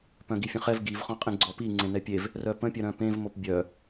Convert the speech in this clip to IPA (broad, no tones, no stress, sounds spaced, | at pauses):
p œ̃ ɡ i fʲ ə̃ χ ɛ v ɡ i v χ ɔ̃ qʼ ĩ ɡ͡ǀ ɔ p i ŋ͡ǀ ẽ n ɛ pʲ e v | r œ p ə̃ pʲ œ ɾ œ̃ p ẽ v m o p bʲ œ